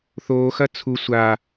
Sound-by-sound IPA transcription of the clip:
θoːxɐ t͡sʰu sʷa

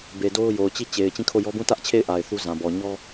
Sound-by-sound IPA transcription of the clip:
be˨do˦ʊ̯ jo˨ʊ̯t͡ɕi˦˨ t͡ɕe˨ɪ̯ t͡ɕĩ˦˨kʰo˦˨jɔ˦ bũ˦˨tä˦ʔt͡ɕʰe˦˨ɪ̯ ʔa˨ɪ̯θu˦ zã˨bɔ˨ ɲɔ˦

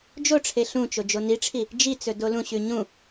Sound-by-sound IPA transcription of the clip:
d͡ʒoʈ͡ʂʰe ɬũt͡ʃo d͡ʒoniʈ͡ʂʰi | d͡ʒit͡sɵ dolũɕʉ ɲũ

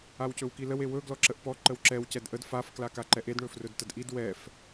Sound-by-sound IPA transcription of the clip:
awcɵwkiləw ewɵ ɡlɔǁəʔpɔ ǃəwǁɛw cɛdʔəd faf klakaǃɛʔed ɳɵfrɵdtədʔid wɛf

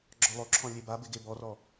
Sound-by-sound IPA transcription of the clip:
ɡ͡ǁɔlˠoǁʰɔ̃ lʲebabɪ ɡebɔrɔ

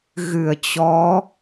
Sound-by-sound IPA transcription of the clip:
ɣɨ˧˩ə̯t͡ɕɔ˨˦

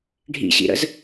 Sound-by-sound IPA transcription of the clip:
ɖʱḭɕḭɾə̰z

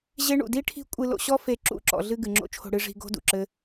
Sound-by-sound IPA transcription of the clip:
ʑe˦ ɳṵ˨di˦ʈʰi̤˦ kʷʼɨ˧lo̰˧ɕɔ˦ fe˧ ǁṵ˦˨ǁɔ̰˨ɮɨ˧ ɡɨ˨ŋ͡ǁo̰˦t͡ʃʰo̤˧ ɽɨ˧ʐi̤˧ ɡo̤˦dṵ˨ǁɘ˦

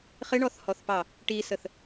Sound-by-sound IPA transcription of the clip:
χɪɳɔθhɔθpɑ | ʈisəθ

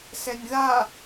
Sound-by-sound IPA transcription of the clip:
sɛnʲða

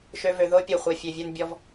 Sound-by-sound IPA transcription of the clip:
ʃø˧vø˨ðo˦ pʲo˨χʷœ˨fʲø˨vʲœ˧n bʲɔ˧v

